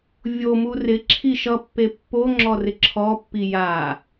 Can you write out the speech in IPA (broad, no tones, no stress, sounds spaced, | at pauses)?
vʲ o m u r ɪ ǁʰ i ʃ ʌ pː e pː o ŋ͡ǁ ɔ r ɪ ǁʰ ɔ pː i j a